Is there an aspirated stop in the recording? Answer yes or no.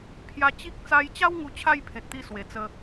yes